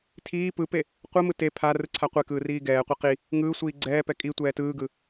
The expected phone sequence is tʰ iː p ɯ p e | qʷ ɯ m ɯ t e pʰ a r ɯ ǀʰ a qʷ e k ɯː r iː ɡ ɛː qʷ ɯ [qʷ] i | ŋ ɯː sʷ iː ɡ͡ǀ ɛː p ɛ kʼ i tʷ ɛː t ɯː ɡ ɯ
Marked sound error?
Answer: yes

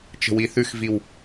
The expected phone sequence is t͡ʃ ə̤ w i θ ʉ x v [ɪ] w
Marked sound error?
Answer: yes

